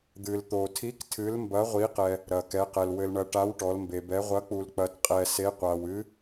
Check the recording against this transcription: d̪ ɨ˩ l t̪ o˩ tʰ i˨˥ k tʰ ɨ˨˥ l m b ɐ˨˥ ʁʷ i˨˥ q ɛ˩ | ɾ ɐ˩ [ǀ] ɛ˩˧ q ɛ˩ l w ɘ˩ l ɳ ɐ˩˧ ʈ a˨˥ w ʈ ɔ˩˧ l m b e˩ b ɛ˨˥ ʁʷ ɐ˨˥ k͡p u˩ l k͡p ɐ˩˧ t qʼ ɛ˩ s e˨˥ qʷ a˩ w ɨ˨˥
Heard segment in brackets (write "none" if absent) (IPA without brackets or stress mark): k